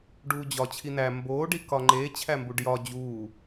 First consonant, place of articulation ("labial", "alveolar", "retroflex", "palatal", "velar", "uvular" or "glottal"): retroflex